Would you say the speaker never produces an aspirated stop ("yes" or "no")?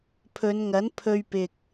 no